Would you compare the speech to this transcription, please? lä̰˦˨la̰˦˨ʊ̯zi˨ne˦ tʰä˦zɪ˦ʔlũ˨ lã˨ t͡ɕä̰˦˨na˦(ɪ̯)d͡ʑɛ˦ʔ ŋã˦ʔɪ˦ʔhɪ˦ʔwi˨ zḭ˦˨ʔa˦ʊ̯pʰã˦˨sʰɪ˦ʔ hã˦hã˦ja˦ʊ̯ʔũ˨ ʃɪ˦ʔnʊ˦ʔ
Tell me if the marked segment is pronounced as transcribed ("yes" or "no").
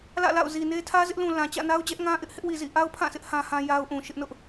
no